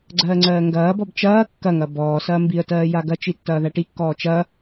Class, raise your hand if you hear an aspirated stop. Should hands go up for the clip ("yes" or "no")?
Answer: no